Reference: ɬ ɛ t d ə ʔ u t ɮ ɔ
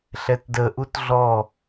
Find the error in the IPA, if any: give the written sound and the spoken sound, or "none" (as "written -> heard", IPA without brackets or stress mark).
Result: none